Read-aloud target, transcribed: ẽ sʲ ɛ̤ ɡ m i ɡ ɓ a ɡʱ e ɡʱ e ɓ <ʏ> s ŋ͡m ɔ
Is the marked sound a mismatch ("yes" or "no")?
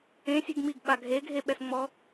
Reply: yes